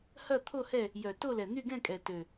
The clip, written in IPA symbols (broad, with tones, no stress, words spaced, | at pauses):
hɐ˥˨ t̪ʰo˥˨hɛ˥˨ | jœ˨˩ to˥˨lɛ˨˩n̪y˥˨ɡɛ̃˥˨ kʼɛ˨˩tø˨˩